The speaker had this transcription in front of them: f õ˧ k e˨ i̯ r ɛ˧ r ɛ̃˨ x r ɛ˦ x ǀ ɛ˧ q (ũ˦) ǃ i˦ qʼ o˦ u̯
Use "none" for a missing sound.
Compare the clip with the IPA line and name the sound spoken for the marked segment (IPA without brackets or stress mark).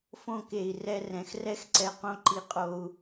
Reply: õ˦